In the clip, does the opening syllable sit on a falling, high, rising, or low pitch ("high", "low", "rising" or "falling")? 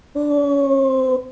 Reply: low